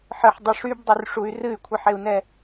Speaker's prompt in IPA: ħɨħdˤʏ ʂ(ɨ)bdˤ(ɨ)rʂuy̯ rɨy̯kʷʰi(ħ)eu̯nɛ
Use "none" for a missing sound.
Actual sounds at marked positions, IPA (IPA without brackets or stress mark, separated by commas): y, ʏ, ħ